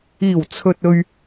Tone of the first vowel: low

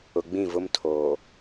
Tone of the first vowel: low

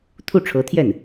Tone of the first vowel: falling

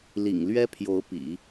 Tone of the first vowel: low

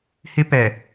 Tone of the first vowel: high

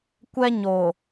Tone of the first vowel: high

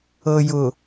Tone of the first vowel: low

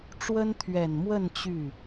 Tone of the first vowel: high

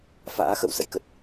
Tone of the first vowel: rising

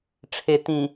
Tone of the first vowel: low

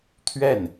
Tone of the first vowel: falling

